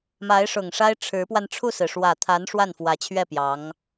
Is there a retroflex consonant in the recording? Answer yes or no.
yes